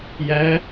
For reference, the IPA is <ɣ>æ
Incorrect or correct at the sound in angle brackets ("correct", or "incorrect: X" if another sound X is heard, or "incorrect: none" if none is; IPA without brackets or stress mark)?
incorrect: j